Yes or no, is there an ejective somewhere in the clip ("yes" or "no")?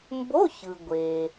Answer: no